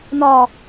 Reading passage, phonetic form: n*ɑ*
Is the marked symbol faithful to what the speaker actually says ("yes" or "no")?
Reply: no